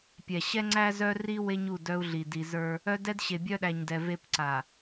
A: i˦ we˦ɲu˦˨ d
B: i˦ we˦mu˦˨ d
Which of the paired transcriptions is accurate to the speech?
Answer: A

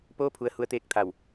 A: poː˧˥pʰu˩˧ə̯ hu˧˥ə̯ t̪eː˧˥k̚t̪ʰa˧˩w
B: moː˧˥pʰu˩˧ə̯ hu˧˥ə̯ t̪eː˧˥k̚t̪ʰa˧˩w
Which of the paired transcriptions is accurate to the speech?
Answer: A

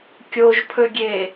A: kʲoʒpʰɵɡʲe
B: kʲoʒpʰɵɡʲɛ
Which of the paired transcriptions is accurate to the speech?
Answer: A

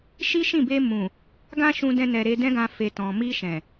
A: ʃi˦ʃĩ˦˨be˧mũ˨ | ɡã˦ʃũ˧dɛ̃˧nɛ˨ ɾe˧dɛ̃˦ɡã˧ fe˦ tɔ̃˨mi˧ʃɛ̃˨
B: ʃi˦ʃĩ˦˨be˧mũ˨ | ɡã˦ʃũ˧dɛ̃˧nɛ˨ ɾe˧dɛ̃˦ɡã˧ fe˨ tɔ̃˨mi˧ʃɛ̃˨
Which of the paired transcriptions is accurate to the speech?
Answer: B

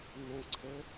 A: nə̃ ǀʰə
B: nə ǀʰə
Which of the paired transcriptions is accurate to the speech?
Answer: A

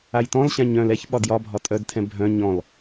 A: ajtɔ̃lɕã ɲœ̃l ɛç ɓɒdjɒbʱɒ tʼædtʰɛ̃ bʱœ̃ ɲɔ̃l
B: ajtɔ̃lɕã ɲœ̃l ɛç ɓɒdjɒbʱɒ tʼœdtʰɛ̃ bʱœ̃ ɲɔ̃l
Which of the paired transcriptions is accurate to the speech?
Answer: B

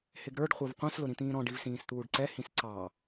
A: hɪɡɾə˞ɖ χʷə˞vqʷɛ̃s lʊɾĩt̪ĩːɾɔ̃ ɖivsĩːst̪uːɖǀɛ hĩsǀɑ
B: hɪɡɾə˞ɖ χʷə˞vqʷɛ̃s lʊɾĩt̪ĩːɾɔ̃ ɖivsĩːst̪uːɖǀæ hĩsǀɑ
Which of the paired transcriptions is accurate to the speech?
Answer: A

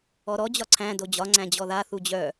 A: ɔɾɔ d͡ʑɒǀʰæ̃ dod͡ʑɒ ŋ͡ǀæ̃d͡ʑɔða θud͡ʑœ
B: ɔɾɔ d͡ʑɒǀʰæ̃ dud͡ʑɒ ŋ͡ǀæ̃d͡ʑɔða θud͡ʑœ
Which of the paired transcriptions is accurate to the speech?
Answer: A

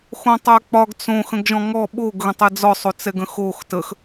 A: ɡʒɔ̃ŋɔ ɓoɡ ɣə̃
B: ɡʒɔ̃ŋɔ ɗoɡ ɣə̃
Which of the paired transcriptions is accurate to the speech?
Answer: A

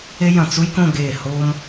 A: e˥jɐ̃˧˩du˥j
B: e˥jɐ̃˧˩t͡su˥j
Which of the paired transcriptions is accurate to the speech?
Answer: B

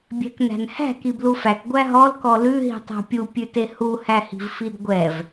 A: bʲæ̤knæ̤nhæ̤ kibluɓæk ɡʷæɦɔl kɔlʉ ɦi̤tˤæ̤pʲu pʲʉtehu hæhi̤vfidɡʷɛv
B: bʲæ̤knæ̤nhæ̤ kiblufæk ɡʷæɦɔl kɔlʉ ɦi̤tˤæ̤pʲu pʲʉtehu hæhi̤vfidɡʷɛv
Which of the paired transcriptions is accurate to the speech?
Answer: B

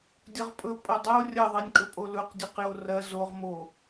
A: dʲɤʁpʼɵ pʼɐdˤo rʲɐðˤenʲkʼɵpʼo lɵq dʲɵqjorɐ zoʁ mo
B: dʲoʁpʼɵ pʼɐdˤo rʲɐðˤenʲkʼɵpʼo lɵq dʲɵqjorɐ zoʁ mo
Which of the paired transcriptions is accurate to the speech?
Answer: A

